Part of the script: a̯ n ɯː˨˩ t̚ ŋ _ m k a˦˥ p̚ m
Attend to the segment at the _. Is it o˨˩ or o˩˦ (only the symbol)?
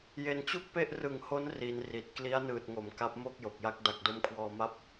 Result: o˩˦